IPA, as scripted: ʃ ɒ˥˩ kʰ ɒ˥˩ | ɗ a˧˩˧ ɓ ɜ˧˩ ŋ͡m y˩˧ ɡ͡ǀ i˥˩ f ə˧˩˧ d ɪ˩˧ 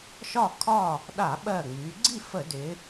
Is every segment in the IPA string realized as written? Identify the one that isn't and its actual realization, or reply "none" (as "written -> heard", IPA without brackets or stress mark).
none